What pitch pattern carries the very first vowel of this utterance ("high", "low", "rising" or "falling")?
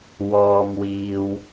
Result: low